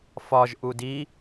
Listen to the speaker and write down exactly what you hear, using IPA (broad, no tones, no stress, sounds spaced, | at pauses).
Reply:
f ɒ ʒ ʔ u d i